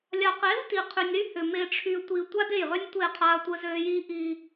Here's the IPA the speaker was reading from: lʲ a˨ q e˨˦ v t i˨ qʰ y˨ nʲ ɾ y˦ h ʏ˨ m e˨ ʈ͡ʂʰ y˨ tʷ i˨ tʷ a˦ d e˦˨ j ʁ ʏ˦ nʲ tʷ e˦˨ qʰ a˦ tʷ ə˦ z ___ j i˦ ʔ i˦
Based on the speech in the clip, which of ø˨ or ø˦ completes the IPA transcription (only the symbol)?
ø˦